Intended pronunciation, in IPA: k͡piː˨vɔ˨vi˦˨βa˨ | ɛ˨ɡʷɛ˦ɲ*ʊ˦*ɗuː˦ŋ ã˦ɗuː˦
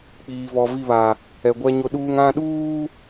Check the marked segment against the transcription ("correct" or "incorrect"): correct